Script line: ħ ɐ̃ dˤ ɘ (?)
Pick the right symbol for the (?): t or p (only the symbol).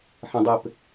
p